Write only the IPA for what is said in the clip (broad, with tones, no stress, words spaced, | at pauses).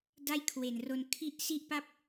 da˥˩jkʰwe˨˩nro˧n kʰi˦˥ʔ si˥˩ʔpa˥˩p̚